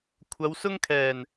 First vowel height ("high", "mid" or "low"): low